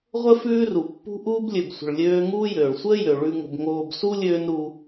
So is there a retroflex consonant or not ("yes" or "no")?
yes